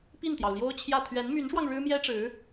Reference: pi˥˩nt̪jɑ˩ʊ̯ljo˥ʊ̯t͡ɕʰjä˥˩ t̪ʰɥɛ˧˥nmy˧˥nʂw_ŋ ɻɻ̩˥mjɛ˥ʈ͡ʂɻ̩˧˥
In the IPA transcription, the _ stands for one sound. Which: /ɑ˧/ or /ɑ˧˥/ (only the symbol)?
ɑ˧